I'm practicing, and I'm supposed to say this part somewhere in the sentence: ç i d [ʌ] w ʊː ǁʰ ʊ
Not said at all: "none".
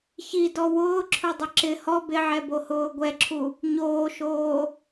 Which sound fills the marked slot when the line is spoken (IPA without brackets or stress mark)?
ɔ